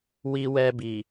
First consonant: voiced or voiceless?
voiced